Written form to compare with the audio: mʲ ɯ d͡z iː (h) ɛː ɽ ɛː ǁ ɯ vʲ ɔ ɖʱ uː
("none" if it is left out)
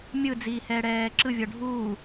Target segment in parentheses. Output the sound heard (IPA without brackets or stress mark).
h